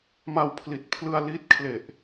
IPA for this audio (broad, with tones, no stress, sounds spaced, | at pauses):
m a˧ w pʰ l i˨˩ t̚ pʰ l ɯ˧ a̯ l i˦˥ t̚ kʰ l e˨˩ ʔ